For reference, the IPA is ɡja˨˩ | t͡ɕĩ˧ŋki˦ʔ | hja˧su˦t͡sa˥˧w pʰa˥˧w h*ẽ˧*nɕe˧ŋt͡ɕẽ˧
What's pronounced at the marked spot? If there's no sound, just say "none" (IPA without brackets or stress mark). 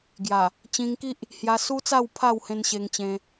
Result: ẽ˧